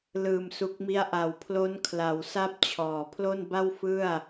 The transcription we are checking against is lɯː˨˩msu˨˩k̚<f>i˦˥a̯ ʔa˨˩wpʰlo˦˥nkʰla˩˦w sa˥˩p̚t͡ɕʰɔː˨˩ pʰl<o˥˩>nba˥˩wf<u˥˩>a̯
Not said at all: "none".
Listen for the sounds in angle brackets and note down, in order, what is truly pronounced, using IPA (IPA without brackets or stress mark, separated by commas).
m, o˥˩, ɯ˥˩